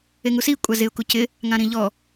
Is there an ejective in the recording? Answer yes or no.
yes